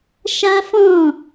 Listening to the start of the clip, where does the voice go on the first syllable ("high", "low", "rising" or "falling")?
high